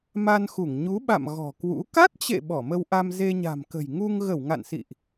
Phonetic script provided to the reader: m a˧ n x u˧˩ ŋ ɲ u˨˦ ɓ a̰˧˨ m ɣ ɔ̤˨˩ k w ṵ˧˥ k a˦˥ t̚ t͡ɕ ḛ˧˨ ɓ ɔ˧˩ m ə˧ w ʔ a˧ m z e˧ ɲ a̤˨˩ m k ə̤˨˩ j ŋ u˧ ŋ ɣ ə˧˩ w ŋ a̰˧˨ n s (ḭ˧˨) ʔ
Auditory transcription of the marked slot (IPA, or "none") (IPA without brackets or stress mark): ḭ˧˨